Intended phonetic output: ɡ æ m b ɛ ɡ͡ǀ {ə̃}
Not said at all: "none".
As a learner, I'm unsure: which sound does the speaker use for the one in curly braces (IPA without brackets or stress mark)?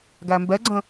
ə̃